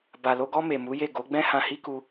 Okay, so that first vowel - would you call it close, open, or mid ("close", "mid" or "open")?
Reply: open